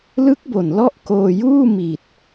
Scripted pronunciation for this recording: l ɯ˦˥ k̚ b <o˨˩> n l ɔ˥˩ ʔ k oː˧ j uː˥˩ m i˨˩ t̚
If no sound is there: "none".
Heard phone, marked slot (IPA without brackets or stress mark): o˨˩